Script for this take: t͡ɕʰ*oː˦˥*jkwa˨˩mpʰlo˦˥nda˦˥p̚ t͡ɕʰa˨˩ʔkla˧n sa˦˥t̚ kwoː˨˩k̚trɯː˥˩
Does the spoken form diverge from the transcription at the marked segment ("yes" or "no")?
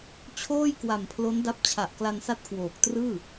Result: yes